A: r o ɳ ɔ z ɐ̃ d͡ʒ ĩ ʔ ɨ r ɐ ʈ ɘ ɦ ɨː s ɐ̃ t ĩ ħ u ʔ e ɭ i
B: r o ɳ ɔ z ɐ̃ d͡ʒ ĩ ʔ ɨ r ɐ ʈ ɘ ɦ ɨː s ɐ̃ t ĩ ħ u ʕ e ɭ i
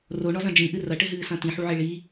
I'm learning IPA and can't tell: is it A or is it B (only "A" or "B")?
B